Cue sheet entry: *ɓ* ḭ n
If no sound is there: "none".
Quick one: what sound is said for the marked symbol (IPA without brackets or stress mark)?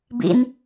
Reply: b